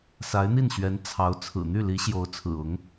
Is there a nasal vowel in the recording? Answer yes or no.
no